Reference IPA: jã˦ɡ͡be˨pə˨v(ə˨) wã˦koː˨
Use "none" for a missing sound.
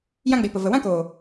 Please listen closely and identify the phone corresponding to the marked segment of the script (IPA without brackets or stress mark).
ə˨